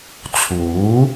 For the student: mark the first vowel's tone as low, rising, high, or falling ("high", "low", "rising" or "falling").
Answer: rising